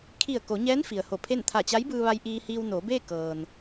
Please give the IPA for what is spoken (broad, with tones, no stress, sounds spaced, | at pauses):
kʰ i˧˩ ə̯ k o˩˧ ɲ ɛː˧˥ n f i˩ ə̯ h o˧˩ pʰ e˥˨ n t̪ʰ a˧˩ t͡ɕ a˧˥ j b ɯː˧ ʋ a˧ j ʔ iː˧ h iː˧ w n oː˩˧ b eː˥˨ k ɤː˩ n